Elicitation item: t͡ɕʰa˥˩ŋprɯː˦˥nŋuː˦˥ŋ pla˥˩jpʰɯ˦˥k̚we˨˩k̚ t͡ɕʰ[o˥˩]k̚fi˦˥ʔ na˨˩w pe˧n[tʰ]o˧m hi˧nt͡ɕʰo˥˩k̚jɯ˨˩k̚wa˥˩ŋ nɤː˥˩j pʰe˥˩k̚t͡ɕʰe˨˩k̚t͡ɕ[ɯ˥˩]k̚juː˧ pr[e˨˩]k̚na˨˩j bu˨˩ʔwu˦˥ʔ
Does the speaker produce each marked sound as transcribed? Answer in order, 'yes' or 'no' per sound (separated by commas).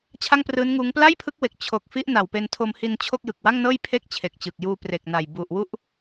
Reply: no, yes, no, yes